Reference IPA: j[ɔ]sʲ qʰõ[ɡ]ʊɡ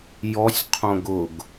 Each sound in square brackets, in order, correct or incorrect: correct, correct

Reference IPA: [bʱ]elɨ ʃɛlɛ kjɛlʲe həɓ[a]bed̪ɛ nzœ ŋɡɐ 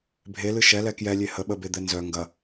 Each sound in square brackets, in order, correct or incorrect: correct, incorrect

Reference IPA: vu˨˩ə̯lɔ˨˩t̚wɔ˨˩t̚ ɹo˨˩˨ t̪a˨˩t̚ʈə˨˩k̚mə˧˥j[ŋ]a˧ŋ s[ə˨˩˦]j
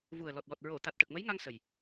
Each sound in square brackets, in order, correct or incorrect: correct, incorrect

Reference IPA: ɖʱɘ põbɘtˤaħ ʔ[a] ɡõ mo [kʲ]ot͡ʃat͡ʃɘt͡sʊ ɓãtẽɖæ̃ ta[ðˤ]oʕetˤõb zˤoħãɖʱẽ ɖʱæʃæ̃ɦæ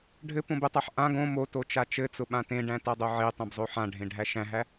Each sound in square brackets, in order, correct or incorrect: incorrect, incorrect, incorrect

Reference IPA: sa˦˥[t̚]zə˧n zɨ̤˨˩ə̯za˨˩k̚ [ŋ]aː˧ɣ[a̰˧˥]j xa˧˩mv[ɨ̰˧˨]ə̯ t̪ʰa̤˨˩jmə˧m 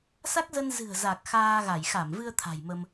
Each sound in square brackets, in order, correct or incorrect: incorrect, incorrect, incorrect, incorrect

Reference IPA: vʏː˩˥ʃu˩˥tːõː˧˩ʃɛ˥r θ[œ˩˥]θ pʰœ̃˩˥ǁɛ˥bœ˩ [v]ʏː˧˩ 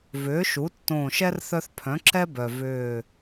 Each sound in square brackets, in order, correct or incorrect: incorrect, correct

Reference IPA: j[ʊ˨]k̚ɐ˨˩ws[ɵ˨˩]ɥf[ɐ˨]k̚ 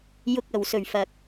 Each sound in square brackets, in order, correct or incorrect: correct, correct, correct

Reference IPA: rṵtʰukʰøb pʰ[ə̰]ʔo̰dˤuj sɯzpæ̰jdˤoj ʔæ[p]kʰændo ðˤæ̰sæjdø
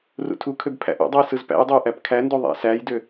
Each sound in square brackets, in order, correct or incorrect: incorrect, correct

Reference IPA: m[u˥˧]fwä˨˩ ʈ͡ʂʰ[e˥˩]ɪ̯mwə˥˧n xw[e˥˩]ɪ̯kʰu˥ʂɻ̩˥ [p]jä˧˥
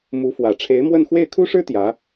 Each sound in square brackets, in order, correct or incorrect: incorrect, incorrect, correct, incorrect

